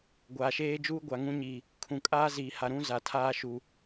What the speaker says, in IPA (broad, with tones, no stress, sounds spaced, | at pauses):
ɡʷ aː˨ ʃ eː˦ d͡ʒ uː˦ ɡʷ a˨ ŋ ũ˦ ɲ iː˨ | kʰ ũ˨ kʼ aː˦ z iː˨ h a˨ ɾ ũ˦ z a˨ tʰ aː˦ ʃ u˨